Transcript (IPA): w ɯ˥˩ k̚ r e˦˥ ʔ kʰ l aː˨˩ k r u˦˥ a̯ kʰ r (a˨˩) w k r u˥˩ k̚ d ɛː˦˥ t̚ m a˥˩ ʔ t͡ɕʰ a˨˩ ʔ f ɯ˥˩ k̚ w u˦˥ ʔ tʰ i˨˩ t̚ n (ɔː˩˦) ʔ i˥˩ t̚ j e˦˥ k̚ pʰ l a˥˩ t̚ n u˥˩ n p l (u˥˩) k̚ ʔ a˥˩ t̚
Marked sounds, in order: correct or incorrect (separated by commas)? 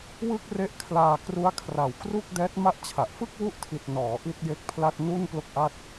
correct, correct, incorrect